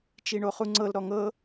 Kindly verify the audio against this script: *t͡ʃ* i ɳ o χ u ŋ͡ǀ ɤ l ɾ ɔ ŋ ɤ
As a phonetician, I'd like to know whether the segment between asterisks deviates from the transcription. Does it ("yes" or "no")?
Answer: no